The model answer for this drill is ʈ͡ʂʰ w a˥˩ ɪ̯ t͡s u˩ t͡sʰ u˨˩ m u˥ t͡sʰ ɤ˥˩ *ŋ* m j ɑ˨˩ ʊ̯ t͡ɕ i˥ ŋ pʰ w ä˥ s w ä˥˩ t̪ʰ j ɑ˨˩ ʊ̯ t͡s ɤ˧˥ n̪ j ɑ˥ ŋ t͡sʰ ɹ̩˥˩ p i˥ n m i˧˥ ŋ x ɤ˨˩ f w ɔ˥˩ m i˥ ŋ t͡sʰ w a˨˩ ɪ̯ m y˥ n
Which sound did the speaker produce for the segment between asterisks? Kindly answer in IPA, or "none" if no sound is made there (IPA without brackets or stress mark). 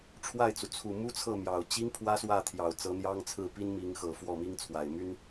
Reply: none